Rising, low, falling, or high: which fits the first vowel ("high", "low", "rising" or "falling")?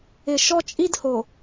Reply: low